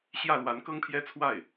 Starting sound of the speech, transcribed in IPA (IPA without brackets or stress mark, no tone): ɕ